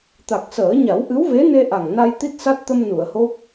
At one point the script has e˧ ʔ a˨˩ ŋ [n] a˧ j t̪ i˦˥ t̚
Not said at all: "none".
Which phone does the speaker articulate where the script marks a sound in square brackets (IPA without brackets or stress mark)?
n